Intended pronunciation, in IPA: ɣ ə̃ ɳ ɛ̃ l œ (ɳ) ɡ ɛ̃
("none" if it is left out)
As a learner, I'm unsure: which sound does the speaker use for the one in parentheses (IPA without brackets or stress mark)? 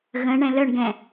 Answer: ɳ